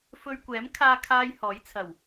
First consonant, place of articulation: labial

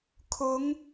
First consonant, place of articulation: velar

